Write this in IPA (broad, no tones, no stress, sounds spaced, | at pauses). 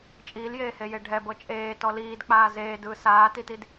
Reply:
t͡ʃʼ iː l j eː h e j e ɖʱ ɛ b ɤ t͡ʃʼ eː t ɔ l iː d k͡p aː z eː d ɯː s aː t i t i d